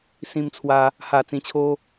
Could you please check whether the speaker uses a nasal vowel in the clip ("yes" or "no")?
yes